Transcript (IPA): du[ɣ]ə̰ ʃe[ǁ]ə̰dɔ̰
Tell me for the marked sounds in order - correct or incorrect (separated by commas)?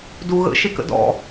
correct, incorrect